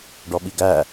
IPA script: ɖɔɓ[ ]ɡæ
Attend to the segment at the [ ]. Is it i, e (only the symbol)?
i